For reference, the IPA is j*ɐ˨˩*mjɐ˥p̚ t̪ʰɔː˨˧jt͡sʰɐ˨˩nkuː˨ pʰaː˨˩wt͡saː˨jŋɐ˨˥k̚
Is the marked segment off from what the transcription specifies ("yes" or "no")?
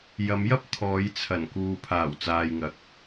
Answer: yes